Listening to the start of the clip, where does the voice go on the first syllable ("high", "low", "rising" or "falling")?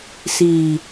low